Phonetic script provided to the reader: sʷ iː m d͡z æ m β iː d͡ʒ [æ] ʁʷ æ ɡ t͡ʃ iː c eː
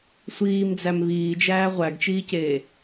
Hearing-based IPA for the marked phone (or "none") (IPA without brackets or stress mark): æː